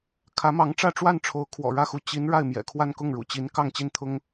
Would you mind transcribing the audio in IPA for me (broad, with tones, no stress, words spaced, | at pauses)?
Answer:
kʰä˧˥mɑ˧˥ŋ ʈ͡ʂä˥˧ʈ͡ʂwa˥˩nʈ͡ʂʰo˧˥ʊ̯ kʰwɔ̰˨˩ɻä˥˩xu˧˥ t͡ɕi˧˥n ɻa˥˩ɪ̯mjɛ̰˨˩kʰwa˥˧n kʊ˥˩ŋɻṵ˨˩t͡ɕi˧˥n kɑ˥˧ŋt͡ɕi˥˩nt̪ʰʊ˥ŋ